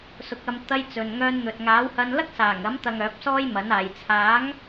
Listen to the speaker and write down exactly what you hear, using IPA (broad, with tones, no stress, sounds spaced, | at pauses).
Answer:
s ʊ˨˥ k̚ ɐ˧ m t̪ ɐ˧ j t͡s ɵ˨ n ŋ œː˧ n n̪ ɵ˨ t̚ ŋ aː˨˥ w h ɐ˧ n l ɐ˥ k̚ s aː˨˩ ŋ ɐ˨˥ m t̪ ɐ˨ ŋ œː˨˥ p̚ s ɔː˥ j m ɐ˨˥ n aː˨ j t͡sʰ aː˨˥ ŋ